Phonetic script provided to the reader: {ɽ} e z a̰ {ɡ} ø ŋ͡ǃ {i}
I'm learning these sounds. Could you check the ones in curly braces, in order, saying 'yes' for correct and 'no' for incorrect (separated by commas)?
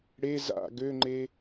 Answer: yes, yes, no